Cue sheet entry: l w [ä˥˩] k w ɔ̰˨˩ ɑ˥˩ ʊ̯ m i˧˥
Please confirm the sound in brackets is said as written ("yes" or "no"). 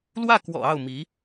yes